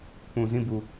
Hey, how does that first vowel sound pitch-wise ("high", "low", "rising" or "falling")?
low